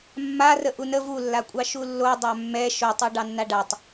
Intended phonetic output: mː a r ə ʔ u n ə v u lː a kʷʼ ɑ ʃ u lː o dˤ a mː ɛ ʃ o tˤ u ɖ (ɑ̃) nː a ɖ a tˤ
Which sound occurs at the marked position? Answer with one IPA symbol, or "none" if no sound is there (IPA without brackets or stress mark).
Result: ɑ